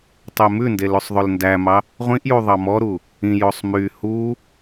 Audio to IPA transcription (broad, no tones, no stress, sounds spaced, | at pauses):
tˤ e m ʉ n d e l ʉ sˤ ðˤ ø l n d æ m ɑ | ʁʷ ĩ ʔ j u ðˤ ɑ m ɔ ɾ u | ĩ j o sˤ m y h u